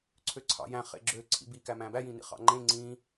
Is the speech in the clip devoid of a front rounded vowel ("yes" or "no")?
no